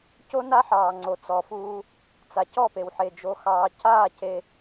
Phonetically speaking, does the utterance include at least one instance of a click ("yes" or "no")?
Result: yes